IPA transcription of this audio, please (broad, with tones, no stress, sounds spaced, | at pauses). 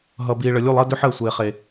ɦ ʌ˨ b iː˨ ɭ ə˨ lʲ u˦˨ lˠ ɜ˦ d ʏ˦ ħ əː˦˨ sʷ eː˨ χ e˨